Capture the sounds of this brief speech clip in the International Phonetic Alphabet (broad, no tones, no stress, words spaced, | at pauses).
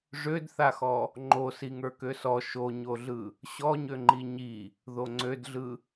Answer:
ʐødθaxɔ | ŋ͡ǃo siŋə˞køsɔ ʃoɲoɮɯ | ɕɔɲøŋ͡ǃi ɲi | ðoŋ͡ǀødɮɯ